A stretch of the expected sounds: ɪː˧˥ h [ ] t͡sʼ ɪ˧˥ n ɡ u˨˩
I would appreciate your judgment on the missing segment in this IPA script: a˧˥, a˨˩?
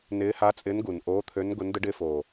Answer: a˧˥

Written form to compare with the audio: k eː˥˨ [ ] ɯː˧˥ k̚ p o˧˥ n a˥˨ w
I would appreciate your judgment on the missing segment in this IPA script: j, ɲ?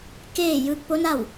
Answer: j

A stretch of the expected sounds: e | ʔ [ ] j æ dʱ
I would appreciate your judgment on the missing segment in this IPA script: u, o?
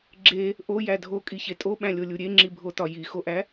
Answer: o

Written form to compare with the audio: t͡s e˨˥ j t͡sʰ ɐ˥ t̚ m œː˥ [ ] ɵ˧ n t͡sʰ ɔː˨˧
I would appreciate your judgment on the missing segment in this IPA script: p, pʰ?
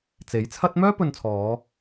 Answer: p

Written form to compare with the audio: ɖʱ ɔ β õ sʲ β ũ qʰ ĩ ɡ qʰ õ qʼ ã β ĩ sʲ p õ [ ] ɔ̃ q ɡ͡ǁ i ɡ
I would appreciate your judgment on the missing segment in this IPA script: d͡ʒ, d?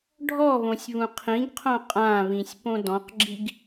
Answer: d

